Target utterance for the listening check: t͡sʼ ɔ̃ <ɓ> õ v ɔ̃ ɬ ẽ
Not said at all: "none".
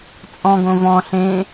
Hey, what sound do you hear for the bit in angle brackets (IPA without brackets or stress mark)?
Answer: ɡ